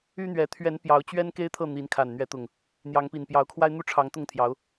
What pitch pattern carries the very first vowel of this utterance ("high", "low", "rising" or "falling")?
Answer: high